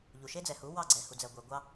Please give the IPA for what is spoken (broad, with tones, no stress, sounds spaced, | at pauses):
ʎ u˨ ʃ e˦ d͡z ɛ˨ h u˨˦ w ɑ˦˨ ɡ͡ǀ ɛ˨ h u˨ d͡z ɛ˨ ɡʷ e˨ ɡʷ ɑ˦